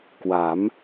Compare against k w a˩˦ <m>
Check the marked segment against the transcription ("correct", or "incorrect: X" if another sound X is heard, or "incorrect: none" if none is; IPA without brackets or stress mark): correct